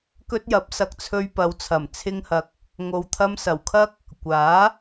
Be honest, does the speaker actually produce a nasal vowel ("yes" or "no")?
no